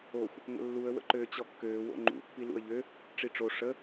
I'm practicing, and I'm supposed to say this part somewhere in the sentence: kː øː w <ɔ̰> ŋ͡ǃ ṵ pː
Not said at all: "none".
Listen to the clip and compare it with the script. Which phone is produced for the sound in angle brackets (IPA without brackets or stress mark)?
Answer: o̰